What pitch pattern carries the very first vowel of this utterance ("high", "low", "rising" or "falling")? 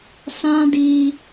high